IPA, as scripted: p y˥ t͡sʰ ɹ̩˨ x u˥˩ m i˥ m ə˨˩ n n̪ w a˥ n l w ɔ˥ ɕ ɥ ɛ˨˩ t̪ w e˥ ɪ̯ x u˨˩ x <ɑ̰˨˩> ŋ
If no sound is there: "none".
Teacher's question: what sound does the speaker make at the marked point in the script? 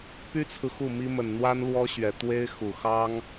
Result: ɑ˥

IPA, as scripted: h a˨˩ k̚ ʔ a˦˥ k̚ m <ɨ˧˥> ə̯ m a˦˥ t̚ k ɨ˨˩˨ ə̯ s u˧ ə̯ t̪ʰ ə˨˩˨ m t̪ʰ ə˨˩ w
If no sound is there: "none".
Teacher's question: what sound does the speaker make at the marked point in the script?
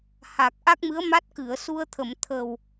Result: ɨ˧˥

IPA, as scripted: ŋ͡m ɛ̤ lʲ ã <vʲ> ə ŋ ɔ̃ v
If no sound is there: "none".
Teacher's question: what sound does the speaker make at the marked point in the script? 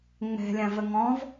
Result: v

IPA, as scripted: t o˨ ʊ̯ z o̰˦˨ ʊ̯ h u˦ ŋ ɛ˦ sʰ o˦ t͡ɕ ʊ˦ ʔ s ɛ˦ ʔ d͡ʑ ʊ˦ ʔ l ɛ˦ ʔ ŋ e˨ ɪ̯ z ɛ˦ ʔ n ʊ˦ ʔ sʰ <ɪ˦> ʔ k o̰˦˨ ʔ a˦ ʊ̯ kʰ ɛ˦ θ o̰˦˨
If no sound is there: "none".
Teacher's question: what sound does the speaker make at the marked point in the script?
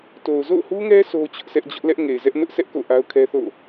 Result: ɛ˦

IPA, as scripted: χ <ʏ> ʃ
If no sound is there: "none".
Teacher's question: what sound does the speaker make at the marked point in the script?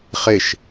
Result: ɪ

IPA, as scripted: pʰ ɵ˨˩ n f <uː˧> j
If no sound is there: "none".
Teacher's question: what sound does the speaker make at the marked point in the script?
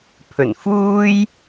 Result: uː˥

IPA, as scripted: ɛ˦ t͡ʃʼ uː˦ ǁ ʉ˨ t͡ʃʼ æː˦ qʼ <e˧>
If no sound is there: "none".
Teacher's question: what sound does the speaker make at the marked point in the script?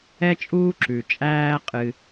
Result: ɨ˧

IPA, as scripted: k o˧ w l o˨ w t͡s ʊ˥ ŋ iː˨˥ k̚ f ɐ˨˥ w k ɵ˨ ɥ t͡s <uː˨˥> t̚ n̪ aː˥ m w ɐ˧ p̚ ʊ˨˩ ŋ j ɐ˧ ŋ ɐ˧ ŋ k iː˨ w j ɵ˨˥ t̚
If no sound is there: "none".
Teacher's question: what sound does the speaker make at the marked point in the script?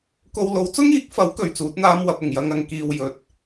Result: uː˨˥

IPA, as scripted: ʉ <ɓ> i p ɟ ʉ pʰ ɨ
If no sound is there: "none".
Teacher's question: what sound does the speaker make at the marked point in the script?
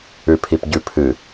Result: pʰ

